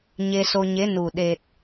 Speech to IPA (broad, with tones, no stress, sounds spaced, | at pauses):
ɲ e˧ s o˧ ɲ e˧˥ n u˨˩ ɗ e˨˩ t̚